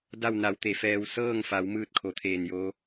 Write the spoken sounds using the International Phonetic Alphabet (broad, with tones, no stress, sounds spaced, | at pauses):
d a˥˨ w n a˩˧ w t̪ e˩˧ f ɛː˧ w s ɤː˥˨ ŋ f a˩˧ w m ɯː˥˨ t̚ kʰ o˩ t̪ʰ eː˧˩ n j oː˧˥